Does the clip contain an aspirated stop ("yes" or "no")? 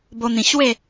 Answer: no